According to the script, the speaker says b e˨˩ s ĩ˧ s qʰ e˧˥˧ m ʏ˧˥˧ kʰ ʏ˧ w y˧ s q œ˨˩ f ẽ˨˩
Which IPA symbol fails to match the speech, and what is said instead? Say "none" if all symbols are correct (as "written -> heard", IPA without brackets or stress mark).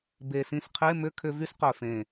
w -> v